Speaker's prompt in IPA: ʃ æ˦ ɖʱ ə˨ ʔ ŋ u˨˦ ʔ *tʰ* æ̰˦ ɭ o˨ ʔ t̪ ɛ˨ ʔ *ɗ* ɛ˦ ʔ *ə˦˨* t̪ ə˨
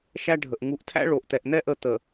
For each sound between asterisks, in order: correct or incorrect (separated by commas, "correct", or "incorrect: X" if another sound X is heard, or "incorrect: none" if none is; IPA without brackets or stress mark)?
correct, incorrect: n̪, correct